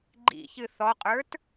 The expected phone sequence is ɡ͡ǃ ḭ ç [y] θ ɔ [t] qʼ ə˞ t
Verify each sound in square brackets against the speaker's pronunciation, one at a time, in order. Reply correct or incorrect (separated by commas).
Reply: incorrect, incorrect